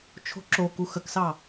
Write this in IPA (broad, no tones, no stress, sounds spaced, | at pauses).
t͡ʃʰ o̤ ǁ o k u x ə k s ɑ